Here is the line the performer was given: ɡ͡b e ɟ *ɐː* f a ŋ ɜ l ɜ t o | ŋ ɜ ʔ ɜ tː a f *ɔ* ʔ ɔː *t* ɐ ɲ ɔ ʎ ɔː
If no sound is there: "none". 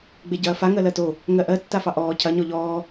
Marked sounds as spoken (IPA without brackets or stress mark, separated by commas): ɐː, ɑ, cʰ